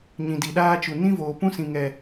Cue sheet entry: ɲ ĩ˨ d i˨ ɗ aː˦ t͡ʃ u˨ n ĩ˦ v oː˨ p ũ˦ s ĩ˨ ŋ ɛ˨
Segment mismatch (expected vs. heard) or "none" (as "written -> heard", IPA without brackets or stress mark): none